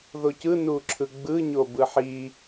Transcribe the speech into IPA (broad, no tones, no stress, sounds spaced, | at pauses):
ð o c ɯ n u ǁʰ ɯ ɡ͡b ɯ ɲ o b ɯ ħ i